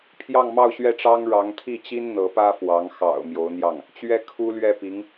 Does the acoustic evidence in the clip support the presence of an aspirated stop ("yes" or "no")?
yes